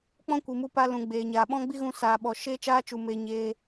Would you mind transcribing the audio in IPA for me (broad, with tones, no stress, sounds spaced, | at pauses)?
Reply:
k͡p ɔ̃˦ kʷ i˨ m u˧ p a˧ l ũ˨ ɡ͡b eː˨ ɲ aː˨ ɓ ɔ̃˦ ɡ͡b i˦ ɣ ũ˧ s aː˨ ɓ ɔ˨ ʃ eː˧ t͡ʃ aː˧ t͡ʃ u˨ m eː˧ ɲ eː˧